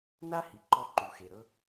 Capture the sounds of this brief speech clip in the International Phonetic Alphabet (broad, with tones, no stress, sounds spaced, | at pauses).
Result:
n a˥ h i˩ ǃ ɔ˧ ǃ u˩ x e˩ ɾ ɤ˥